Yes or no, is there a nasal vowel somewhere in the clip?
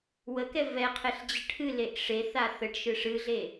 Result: no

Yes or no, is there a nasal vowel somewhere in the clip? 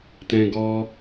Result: yes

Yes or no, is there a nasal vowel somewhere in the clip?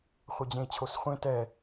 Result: yes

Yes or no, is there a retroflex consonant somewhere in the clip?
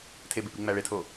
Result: yes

